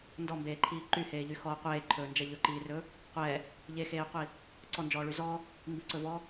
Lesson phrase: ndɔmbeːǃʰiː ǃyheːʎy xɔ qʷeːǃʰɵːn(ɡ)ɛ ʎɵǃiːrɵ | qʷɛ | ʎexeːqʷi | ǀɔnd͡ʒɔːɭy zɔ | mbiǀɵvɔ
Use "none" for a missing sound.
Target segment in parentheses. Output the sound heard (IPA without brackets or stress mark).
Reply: d͡ʒ